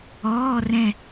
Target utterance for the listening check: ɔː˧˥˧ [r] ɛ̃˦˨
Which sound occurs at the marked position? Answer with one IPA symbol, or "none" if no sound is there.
r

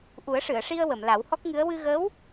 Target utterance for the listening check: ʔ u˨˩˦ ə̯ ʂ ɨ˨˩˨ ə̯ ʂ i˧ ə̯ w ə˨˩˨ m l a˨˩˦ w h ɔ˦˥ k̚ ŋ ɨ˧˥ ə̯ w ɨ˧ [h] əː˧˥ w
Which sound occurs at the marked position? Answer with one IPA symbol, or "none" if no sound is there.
ɣ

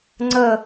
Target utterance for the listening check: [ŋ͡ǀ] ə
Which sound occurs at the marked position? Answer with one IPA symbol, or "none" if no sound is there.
ŋ͡ǀ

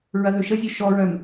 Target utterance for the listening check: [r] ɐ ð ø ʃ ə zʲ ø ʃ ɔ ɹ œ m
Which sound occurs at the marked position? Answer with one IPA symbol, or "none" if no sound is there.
ɹ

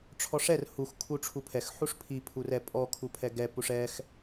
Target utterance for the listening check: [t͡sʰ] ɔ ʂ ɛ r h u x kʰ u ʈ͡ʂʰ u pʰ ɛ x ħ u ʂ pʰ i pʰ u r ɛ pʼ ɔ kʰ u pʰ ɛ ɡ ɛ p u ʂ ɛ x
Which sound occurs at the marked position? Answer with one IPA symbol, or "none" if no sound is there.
ʈ͡ʂʰ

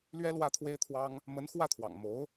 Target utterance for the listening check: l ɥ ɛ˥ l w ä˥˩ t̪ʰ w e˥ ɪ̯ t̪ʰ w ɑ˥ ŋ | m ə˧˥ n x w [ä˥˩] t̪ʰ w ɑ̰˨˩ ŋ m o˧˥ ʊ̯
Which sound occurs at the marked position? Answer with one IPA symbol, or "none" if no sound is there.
ä˥˩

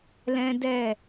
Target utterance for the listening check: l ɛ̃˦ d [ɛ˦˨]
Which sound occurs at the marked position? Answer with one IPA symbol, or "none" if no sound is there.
ɛ˦˨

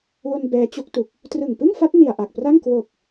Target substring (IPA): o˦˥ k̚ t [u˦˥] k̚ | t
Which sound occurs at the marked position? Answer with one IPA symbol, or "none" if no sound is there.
u˨˩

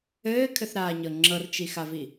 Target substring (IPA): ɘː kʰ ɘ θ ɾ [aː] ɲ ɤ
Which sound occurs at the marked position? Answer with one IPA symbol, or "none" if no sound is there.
aː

